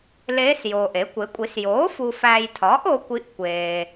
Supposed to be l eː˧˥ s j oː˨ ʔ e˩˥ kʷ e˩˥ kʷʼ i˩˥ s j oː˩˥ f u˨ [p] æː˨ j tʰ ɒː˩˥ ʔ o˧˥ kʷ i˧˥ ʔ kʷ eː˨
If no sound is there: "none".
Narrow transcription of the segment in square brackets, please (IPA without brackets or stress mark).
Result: f